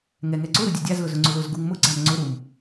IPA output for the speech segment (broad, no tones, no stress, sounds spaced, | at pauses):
ŋ ɛ ŋ ɛ ǀ ʊ ɾ ʊ dʲ ʊ dʲ a z l ʊ z ʊ ŋ͡ǀ ʊ l ʊ z ɡ u ŋ m ʊ ɡ͡ǀ a m ŋ͡ǀ ʊ ɾ u m